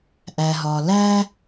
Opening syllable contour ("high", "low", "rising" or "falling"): low